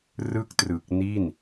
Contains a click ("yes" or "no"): no